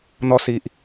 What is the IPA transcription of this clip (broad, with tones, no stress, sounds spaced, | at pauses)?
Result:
n̪ ɔ˧ s i˨ ʔ